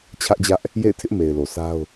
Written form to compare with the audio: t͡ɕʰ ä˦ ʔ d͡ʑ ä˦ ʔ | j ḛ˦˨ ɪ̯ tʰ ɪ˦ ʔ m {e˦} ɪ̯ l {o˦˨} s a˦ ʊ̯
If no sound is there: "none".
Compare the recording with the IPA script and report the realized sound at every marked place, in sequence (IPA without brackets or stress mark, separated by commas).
e˨, o˨